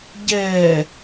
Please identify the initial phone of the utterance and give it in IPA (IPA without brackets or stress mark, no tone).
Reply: ɟ